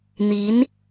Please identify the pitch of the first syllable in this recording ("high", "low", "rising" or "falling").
rising